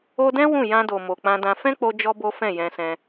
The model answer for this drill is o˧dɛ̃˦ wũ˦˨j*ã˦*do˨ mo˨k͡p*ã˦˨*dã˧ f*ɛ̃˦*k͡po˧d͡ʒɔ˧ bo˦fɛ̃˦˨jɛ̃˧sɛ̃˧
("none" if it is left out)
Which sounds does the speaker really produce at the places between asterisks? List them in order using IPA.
ã˧, ã˧, ɛ̃˦

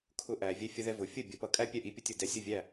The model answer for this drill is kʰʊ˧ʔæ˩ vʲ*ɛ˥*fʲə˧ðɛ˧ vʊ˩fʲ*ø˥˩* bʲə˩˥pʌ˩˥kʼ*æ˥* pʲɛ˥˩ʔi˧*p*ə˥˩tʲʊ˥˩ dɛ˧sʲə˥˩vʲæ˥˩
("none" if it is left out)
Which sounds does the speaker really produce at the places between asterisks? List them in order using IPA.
ɛ˧, ə˥˩, æ˥, pʲ

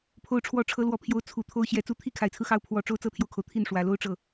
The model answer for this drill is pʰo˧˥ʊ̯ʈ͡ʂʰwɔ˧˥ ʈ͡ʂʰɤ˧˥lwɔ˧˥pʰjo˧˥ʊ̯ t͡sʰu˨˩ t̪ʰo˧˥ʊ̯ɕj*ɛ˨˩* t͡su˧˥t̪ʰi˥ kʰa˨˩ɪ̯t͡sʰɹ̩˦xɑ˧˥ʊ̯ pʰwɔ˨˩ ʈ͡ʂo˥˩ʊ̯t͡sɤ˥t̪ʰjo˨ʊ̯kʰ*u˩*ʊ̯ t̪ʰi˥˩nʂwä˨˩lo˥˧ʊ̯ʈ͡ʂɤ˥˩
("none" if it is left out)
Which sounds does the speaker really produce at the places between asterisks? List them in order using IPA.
ɛ˨˩, o˩

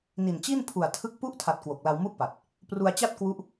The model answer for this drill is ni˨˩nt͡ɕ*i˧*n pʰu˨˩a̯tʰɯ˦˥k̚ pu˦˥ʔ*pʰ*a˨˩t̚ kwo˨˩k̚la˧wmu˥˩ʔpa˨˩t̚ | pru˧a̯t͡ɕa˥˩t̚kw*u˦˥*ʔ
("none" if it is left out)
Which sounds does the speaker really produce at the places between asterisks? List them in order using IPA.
i˥˩, tʰ, u˦˥

